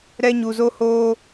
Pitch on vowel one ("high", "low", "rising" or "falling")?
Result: high